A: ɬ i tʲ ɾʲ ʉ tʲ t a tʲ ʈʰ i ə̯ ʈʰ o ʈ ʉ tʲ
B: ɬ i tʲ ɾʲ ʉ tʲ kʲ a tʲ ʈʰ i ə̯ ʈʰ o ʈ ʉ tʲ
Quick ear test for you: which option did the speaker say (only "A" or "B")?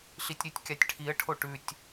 B